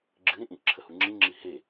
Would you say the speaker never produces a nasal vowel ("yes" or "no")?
no